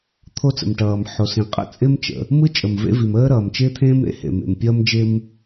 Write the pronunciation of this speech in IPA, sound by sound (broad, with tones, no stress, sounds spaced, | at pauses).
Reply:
t̪ʰ o˥ t͡s ə̰˩ m ʈ ʌː˩ m ħ o˩ s ĩ˩ qʼ ə̰˥ t͡sʼ ɪ˥ m t͡ʃ ə̰˩ | m ɯ˥ t͡ʃʼ ə˩ m v ḛ˥ v i˩ m əː˥ ɾ ʌː˩ m t͡ʃ ɪː˥ t̪ʰ ẽː˥ m ɾ ḛ˥ h ḛ˩ m ḛ˩ m pʲ ʌː˥ m d͡ʒ ɪ˥ m